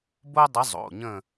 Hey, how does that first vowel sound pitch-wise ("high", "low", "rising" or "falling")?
high